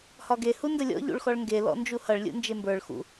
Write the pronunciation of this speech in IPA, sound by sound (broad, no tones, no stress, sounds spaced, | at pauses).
h ɒ ɡ e h u n d ə lʲ ɔ̰ ʎ ṵ ɭ x ɔ ɭ ŋ ɡ e l ɔ̰ n d͡ʒ u h ʌ ɭ lʲ ṵ n d͡ʒ e m b ə˞ ɭ x ṵ